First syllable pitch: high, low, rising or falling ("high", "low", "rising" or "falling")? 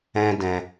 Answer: high